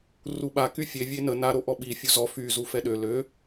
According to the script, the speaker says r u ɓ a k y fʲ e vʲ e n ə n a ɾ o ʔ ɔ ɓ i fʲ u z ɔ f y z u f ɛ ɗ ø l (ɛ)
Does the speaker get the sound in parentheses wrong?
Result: yes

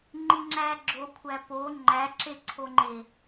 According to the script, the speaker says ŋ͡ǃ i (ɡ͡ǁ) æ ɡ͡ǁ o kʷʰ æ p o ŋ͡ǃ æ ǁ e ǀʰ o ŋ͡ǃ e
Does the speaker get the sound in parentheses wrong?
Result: yes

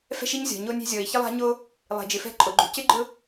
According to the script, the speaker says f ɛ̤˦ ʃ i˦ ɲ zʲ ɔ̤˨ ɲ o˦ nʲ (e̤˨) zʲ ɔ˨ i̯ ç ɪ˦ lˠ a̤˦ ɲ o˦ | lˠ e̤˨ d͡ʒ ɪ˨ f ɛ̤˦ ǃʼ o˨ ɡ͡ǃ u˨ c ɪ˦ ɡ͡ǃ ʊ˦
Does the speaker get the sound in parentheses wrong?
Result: yes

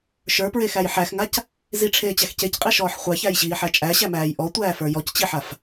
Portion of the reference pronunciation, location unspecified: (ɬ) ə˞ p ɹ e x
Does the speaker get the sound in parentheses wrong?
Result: yes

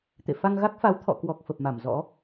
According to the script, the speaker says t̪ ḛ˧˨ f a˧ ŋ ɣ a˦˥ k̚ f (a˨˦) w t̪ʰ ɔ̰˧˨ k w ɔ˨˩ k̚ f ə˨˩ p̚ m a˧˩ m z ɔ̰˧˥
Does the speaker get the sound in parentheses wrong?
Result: no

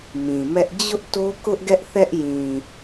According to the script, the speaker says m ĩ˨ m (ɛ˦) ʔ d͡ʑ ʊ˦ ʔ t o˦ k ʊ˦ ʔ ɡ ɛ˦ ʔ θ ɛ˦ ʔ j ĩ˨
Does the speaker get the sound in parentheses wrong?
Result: no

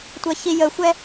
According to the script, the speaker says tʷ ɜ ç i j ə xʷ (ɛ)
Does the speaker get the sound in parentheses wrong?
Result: no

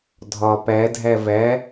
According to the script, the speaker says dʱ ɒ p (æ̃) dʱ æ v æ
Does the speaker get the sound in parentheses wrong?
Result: yes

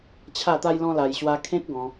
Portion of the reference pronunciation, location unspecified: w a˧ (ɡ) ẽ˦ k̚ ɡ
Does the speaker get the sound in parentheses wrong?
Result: yes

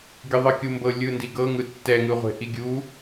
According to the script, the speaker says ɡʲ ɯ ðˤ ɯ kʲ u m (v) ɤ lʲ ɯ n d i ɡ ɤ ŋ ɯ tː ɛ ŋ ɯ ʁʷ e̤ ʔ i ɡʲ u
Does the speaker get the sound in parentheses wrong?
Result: yes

